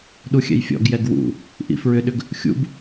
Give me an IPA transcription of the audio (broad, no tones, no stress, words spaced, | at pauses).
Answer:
ɗuxʲɛ̰jfʲɔ̰ɡjɛɡ wṵ | ʔḭfɹʏɗʏɡ | xʲṵb